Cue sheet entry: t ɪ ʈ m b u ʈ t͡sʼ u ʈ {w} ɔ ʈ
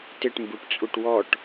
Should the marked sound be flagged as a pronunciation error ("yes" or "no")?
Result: no